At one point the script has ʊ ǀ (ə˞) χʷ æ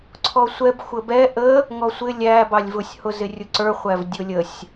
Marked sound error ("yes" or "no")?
no